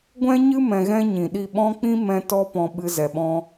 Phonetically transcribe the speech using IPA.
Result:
ɡʷ ɛ̃˦ ɲ ɨ˦ m ɛ̃˧ ɣ ɛ̃˦ ɲ ĩ˨ ɗ i˦˨ ɓ ɔ̃˦ k͡p ĩ˦ m ɛ̃˧ t ɔ˦ p ɔ̃˧ ɓ ɨ˧ z ɛ˨ ɓ ɔ̃˧

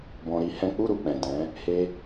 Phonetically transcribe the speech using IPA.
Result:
b ɔ̃˧ ɾ i˦ h ɛ̃˦ k͡p u˦˨ ɾ u˨ k͡p ɛ̃˨ d ɛ̃˨˦ | h e˧

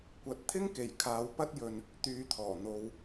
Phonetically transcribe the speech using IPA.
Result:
kʷ ɐ˨ t̚ t̪ʰ ɪ˥ ŋ k e˨˩ j kʰ aː˨˧ w p ɐ˥ t̚ j ɵ˧ n | t̪ yː˨˧ t̪ʰ ɔː˨˩ n̪ o˧ w

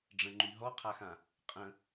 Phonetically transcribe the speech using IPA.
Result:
ɖ͡ʐ ə̃ ŋ͡ǃ y ɦ ɔ qʰ a x ã | qʼ ə̃

